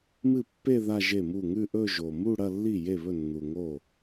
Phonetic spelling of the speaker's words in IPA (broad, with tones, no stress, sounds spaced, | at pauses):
m ɨ˥˩ pː e˥˧ ð a˥˧ ʒ e˥˩ m u˥˩ ŋ ʉ˥˧ ʔ ɵ˥˧ ʒ o˨˩ m u˥˧ ɽ ɐ˥˧ lː i˥˩ j e˥˩ β ɵ˥˩ nː u˨˩ ŋ o˥˩